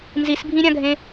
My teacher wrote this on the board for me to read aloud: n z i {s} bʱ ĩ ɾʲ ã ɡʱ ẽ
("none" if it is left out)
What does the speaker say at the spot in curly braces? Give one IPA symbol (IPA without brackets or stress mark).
s